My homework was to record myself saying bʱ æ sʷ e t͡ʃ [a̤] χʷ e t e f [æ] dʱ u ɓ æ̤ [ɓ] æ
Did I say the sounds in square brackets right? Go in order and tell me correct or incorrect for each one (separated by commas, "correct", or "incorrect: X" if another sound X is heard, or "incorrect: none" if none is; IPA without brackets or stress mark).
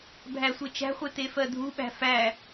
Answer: incorrect: æ̤, incorrect: ɜ, incorrect: f